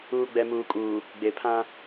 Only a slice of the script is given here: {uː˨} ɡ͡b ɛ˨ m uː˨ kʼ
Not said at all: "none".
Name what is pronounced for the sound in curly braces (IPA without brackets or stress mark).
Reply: uː˨